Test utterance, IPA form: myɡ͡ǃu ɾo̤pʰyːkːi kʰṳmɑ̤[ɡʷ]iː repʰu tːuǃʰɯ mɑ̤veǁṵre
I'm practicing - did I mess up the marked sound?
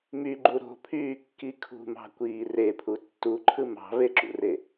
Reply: yes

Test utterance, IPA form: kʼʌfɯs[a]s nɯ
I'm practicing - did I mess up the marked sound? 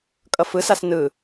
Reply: no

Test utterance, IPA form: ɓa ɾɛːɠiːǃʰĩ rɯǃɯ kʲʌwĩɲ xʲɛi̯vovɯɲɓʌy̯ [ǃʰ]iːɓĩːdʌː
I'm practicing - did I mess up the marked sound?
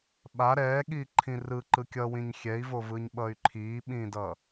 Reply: no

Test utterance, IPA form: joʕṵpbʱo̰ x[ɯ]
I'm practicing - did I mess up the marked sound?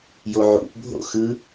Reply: no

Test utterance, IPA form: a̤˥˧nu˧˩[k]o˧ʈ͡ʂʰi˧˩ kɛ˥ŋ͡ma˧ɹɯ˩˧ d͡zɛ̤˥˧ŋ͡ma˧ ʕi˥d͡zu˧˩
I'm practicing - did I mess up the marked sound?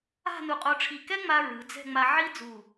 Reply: yes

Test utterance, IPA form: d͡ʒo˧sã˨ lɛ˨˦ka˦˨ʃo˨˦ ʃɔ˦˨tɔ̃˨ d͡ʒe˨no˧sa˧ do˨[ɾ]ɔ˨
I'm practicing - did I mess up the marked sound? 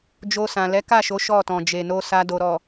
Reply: no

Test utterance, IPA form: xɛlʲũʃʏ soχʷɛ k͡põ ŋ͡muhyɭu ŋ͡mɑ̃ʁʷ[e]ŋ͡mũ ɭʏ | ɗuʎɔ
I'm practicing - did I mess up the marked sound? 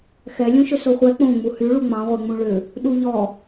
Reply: no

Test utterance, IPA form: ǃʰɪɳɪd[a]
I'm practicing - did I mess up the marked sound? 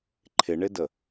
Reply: yes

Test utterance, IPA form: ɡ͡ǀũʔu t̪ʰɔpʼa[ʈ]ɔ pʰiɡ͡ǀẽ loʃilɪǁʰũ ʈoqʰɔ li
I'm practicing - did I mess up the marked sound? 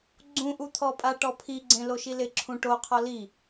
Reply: no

